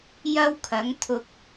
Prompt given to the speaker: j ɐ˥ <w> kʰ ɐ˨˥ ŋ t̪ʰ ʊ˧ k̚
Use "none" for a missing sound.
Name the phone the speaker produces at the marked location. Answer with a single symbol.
w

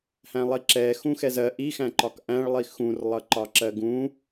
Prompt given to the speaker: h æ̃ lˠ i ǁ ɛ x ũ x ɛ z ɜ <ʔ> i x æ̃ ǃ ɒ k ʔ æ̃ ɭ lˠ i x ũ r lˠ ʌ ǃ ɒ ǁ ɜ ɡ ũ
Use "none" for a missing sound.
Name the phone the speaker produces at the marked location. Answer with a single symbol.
ʔ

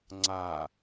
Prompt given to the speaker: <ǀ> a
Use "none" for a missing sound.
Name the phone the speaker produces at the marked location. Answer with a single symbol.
ŋ͡ǀ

